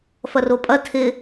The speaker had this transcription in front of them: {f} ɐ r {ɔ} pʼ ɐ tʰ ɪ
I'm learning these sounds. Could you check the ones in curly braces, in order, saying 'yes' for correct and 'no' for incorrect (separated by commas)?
yes, no